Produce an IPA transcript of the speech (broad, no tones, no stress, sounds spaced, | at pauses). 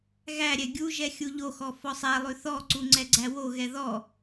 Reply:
ɣ æ ɾʲ ɛ ɡʲ u ʒ ɛ xʲ u ʎ o x ɔ f ɔ sˤ æ lˠ ʉ θ ɔ ǀ u ŋ͡ǀ ɛ ɡ͡ǀ æ w o ɣ ɛ ð ɔ